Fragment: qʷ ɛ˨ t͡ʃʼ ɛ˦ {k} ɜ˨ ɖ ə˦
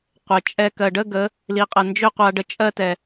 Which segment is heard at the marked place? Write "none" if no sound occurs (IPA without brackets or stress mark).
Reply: k